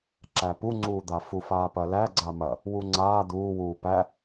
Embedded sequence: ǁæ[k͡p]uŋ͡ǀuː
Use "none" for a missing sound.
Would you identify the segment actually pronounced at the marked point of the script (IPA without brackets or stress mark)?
p